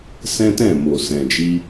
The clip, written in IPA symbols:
s ɛ̃˦ t ɛ̃˦˨ m o˨ s ɛ̃˨ d͡ʒ i˧

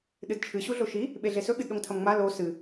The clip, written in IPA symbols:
ɗ ɨ d t͡ʃʰ ɨ ɕ u ɮ o ʃ i | ɓ e ɮ e s ɵ ɠ ɨ d ɗ o ŋ tʰ ɐ m ŋ͡m a l o s ɨ

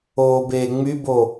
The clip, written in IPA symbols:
oː b eː ŋ͡m y b o

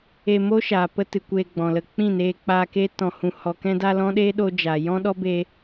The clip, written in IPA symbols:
e˧ m o˦ ʃ aː˨ p ə˧ t ɨ˨ kʷ eː˧ ɡ͡b ɔ̃˨ l ə˧ k͡p ĩ˦˨ n eː˧ k͡p aː˧ k e˦ t ɔ̃˧ h ũ˧ h ɔ˨ k ɛ̃˧ d a˧ l ɔ̃˦ ɗ eː˦ ɗ o˧ d͡ʒ aː˨ j ɔ̃˦ ɗ ɔ˦ b e˧

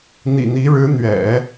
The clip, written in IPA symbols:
n̪ ḭ˨˩ n̪ i˧˥ ɻ ɻ̩˧˥ n̪ ɥ ɛ̰˨˩˦

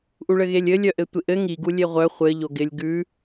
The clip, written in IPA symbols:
ʔ u ɭ ɘ ɣ e lʲ ɘ lʲ œ ʔ ɘ tʷ ɪ ʔ ɘ ŋ i ɡ u lʲ e ʁʷ œ χʷ ɘ ʎ o ɡ ɪ lʲ ɡ ʉ

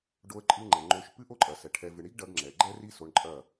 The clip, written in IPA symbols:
ɖ o˧ ə̯ ǃʼ ɨ˧ ŋ͡ǃ ɛ˨ ŋ͡ǃ o˧ ʃ p ɨ˦ ʔ o˦ ǃʼ ɐ˨ s ɛ˨ ʈʰ ɛ˧ v ɨ˧ ɳ i˦ ɡ ɖ ɐ˧ ɡ ŋ͡ǁ ɛ˨ ɡ͡ǃ ɛ˦ r i˦ s o˧ ɳ ǃʼ ɐ˦˨

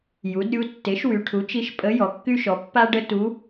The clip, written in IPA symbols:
j u˩˥ d ɾʲ u˧˥ tː e˩˥ ʃ w y˩˧ ʈʰ u˩˥ t͡ʃ i˧˥ ʃ pʼ ə˧˥ j ɔ˩˧ kː y˥ ʃ ɔ˩˥ pː a˥ ɖ ə˥ t u˧˥

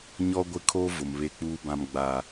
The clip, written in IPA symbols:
ɲ ɔ˦ ɡʷ ɪ˦ kʰ o˦ v ʊ˨ m β e˦ k͡p uː˦ b ã˦ m ɡ͡b a˦

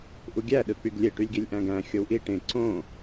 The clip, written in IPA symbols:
ʔ u ɡʲ æ ɗ ɯ k͡p y ɡ lʲ e ʈ y lʲ ɡ i lʲ ʔ æ̃ ɡ æ̃ xʲ o w ʔ i ʈ ẽ ǀ õ

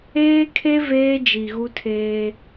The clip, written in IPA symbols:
eː˦ kʰ e˦ v eː˦ d͡ʒ i˨ ɣ u˦ tʰ eː˦

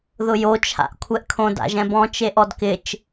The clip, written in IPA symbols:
ð ʊ j o t͡ʃʰ a̰ ʔ kʷʰ ɛ ʔ kʰ õ d a̰ ʒ ɛ̃ b ɔ̃ t͡ʃ e ʔ ɔ d k ɪ t͡ʃ

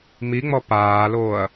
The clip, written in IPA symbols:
m i ŋ͡m ɔ p aː l oː ɐ̯

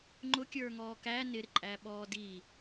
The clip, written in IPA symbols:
ŋ͡ǃ ʊ kʲ ə˞ ŋ ɔː k æ n ɪ ɾ ɪ ǃʼ æ ɓ ɔː d i

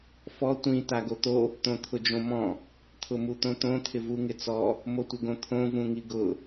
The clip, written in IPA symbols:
f ɔ tʷ ĩ t a ɡ o t̪ o | t̪ õ t̪ʰ ʊ d͡ʒ õ m ɔ̃ | t̪ʰ ʊ m u t̪ õ t̪ õ t̪ʰ ɪ v u ŋ ɪ t͡s ɔ | m o tʷ ɪ ɡ õ t̪ʰ õ v ũ ŋ i ɡ ʊ

